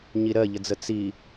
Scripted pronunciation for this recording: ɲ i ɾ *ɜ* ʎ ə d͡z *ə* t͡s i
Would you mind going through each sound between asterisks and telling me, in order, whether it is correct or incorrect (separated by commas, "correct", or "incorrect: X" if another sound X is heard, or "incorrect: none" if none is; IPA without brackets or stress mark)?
correct, correct